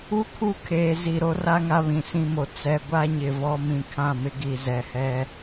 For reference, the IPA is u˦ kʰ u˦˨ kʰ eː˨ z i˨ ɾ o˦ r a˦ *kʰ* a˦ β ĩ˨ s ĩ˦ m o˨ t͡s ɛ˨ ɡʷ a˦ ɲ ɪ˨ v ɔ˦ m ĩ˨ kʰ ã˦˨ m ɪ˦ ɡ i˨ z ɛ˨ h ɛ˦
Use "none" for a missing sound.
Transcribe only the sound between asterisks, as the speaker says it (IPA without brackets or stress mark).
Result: ŋ